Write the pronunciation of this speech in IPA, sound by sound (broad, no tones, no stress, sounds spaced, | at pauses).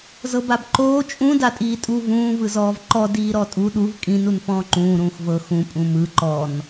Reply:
z ɤ b a b ǃ oː t͡ʃʼ ũ d a tʼ iː tʼ u v ũː v ɯ z ɔː v ǃ ɔ d iː ɾ ɔ tʼ u ɗ u v kʼ ĩ n u n f ɔ̃ː ǃ ũː ɾ ũː x v ɤ x ũ pʼ ũ m ɯ ǃ ɔ n